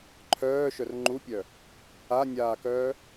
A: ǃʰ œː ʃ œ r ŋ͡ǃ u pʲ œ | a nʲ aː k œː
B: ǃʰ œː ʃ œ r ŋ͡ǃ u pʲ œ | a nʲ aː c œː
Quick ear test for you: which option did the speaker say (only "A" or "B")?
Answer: A